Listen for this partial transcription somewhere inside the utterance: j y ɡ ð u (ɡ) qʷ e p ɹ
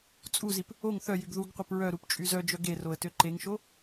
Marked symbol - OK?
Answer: yes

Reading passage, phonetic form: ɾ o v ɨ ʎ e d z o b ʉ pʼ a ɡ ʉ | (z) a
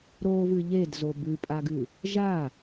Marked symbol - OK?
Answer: no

